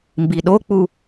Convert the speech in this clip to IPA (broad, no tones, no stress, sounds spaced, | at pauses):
m b i ɗ o k͡p u